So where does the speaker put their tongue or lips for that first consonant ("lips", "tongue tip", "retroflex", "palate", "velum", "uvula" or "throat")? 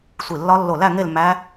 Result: tongue tip